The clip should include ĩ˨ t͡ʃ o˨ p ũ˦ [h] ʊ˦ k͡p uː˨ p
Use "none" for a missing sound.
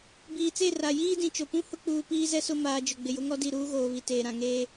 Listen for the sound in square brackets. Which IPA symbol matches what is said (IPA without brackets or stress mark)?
h